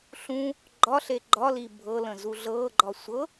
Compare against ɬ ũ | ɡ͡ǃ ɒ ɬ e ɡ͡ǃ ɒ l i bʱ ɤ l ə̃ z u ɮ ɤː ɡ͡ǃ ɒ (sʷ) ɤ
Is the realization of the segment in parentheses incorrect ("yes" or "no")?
no